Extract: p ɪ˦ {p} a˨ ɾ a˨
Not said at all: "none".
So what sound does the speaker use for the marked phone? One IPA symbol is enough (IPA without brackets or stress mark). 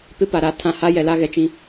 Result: p